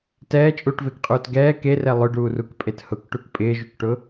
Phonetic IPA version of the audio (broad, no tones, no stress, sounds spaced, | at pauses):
t ɛː t͡ʃʼ uː ʈ v e k qʼ uː t ɡ ɛː k e r ɛ lˠ ʊ ɖ uː r u k pʼ e t h ʊ k ʈ u k pʼ ɪː ʒ u k ʈ ʊ